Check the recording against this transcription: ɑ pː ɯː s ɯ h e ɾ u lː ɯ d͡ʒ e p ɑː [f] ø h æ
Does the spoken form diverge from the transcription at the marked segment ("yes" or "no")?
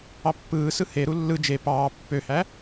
yes